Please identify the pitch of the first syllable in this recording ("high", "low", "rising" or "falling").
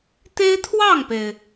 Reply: high